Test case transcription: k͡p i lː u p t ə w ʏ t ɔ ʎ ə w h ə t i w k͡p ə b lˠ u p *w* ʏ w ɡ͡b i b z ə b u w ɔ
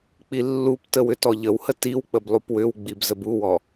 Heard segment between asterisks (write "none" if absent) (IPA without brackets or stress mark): w